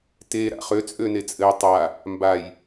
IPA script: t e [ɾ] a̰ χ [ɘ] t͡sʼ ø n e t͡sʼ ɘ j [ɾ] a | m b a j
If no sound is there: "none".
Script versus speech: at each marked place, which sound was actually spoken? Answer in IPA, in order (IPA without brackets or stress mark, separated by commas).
ɾ, ø, tˤ